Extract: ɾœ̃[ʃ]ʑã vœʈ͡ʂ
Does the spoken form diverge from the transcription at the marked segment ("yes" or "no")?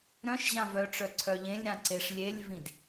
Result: no